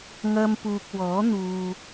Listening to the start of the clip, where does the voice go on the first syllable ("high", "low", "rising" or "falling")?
high